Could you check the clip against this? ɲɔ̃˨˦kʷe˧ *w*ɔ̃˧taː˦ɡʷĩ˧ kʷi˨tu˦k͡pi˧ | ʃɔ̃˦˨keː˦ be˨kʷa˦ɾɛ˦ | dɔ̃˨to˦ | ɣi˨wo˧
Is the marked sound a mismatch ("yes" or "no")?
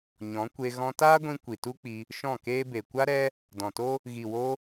yes